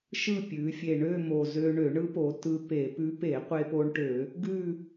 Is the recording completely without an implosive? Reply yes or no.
yes